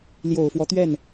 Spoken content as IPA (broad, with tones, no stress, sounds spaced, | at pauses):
l j o˨˩ ʊ̯ f w ɔ˦ t̪ ɥ ɛ˥˩ n